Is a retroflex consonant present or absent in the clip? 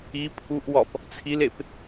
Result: absent